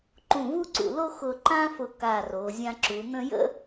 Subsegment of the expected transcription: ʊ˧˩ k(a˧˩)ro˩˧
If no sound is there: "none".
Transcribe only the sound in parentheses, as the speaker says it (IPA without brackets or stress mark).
a˧˩